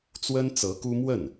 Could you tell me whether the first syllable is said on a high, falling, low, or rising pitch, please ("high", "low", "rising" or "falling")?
high